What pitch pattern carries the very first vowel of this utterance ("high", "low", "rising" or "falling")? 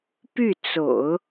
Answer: falling